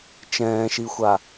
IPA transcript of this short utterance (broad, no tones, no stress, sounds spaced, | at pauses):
t͡ʃ ɛ̃ː ʃ i xʷ a